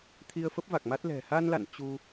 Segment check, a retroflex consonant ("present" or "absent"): absent